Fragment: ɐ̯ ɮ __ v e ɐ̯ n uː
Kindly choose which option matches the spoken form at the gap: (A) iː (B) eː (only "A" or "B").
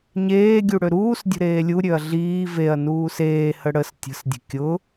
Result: A